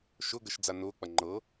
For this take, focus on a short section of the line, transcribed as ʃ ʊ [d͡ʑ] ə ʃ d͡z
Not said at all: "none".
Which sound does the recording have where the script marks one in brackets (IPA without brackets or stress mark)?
ɡ